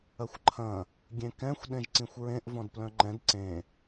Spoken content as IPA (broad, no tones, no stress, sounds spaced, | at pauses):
ɐ xʷ ǃʰ ɐ̃ | ɡʲ ẽ k ɛ̃ xʷ ɗ ẽ ʒ ǀ ĩ xʷ ɹ ẽ ʔ v ɔ̃ d p l œ̃ ŋ͡ǃ ɛ̃ d ǀ ẽ